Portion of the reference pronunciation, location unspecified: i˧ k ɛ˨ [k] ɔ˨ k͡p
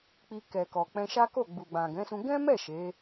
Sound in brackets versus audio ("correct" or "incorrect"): correct